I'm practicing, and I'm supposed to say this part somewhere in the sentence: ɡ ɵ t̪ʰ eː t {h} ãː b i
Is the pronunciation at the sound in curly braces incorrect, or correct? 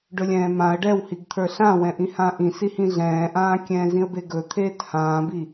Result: correct